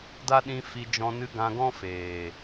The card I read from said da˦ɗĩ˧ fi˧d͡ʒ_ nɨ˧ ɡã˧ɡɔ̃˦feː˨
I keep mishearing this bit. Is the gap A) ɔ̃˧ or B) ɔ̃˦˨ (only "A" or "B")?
A